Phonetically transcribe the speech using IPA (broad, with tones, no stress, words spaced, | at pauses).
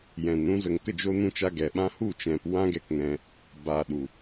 jɛ̃˨nɾũ˧zə˨ŋ kə˦˨d͡ʒo˧nũ˧t͡ʃa˧ ɡɛ˨ɓã˧ hu˦˨t͡ʃɛ̃˨p wã˦ɡɛ˧kŋɛ̃˧ | ba˨ɗu˨